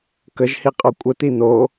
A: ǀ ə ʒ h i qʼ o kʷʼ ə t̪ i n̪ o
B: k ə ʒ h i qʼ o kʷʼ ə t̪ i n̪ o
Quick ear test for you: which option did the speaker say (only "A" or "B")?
B